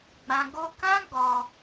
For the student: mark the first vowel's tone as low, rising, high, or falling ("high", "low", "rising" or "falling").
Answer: low